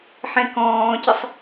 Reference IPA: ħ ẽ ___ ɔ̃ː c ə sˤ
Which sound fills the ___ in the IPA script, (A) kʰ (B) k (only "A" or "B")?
B